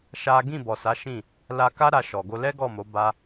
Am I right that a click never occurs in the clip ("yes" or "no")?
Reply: yes